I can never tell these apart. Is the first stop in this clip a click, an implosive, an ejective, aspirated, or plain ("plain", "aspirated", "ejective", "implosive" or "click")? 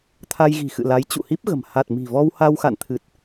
aspirated